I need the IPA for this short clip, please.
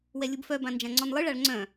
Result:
w ɛ lʲ u b f œ b ã n d͡ʒ ã ŋ͡ǀ ɔ n lˠ ɯ ɭ a ɭ ŋ͡ǀ œ̃

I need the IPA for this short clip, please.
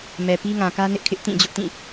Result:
m ɛ˨ p i˦ ŋ ã˨ k ä˦ n ɪ˦ ʔ kʰ ɪ˦ ʔ t ĩ˦˨ d͡ʑ ʊ˦ ʔ t ĩ˦˨

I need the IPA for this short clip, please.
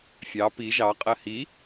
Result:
fʲ ɑ p i ʒ ɑ qʼ ɜ h i

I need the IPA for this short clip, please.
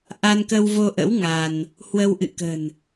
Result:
ʔ a˧ n k ə˧ w v o˧ ʔ ə̰˧˥ w ŋ a˧ n | h w ə˧ w ʔ ɨ̰˧˨ k ə̤˨˩ n

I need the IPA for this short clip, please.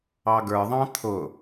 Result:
ɑ ɡ ə˞ ðˤ ɑ̃ t̪ʰ ʊ

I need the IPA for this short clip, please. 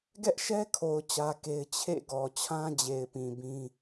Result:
ɡ ɛ˦ ʔ ʃ ɛ˦ kʰ o˨ ʊ̯ t͡ɕ ä˦ k e˦ ɪ̯ t͡ɕʰ ḛ˦˨ ɡ ɔ˨ t͡ɕʰ ã˦ d͡ʑ e˨ ɪ̯ p ĩ˨ b ĩ˦

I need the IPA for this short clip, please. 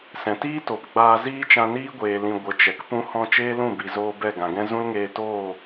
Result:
s ɛ̃˨ t iː˦ t o˨ p ɡ͡b aː˧ z iː˦ t͡ʃ ã˧ n iː˦ ɡʷ eː˨ l ĩ˨ ɡʷ ə˨˦ t͡ʃ ɛ˨ k p ũ˧ h ɔ̃˧ t͡ʃ eː˦ l ũ˦˨ b i˨ z oː˧ b ɛ˦˨ ɡ ã˨ ɡ ɛ̃˦ z ũ˦ l ŋ eː˧ t oː˦˨

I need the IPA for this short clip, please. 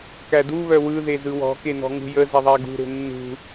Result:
k æ d u β œ w ɯ ð e z ɯ w ɔ̤ k e n ɔ̤ ŋ ṳ j ə z ɛ ðˤ æ ɡ ṳ ɾ e̤ nː ṳ

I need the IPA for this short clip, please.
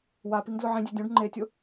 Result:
w a p i ŋ d l ʊ ʕ ĩ dʲ e dʲ ũ ɖ ŋ͡ǃ e tʲ ʊ

